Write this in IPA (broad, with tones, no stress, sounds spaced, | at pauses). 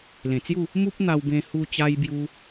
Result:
l ẽ˨˩ t͡s j u˥˧ | m u˦ p̚ n̪ a˧ w b ẽ˧ h u˧ t͡ɕ a˧ j b j u˧